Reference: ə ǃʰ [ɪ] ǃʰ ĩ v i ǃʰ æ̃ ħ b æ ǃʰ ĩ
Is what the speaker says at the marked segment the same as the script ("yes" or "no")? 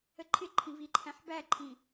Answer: yes